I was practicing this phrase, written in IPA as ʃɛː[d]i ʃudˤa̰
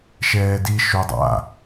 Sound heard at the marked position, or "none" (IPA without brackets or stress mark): d